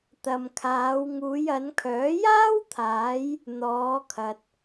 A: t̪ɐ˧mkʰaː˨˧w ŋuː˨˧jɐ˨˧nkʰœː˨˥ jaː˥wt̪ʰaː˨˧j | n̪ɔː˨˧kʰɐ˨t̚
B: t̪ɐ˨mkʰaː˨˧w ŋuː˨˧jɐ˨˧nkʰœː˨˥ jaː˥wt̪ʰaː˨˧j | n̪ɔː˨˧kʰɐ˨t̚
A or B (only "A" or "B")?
B